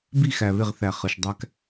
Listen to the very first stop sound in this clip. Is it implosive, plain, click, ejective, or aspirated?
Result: plain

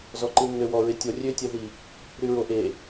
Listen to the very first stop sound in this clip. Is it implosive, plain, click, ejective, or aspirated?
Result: click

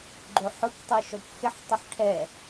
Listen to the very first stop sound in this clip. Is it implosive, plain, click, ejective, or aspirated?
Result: click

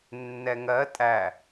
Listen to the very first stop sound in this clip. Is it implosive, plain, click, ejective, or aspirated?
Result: ejective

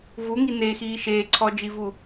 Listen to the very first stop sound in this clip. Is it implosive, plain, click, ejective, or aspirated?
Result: click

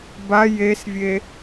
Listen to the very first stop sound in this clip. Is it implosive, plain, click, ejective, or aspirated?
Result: plain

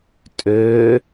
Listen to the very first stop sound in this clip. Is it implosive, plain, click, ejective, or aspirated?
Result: ejective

